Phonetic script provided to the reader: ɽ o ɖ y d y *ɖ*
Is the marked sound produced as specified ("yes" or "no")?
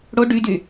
no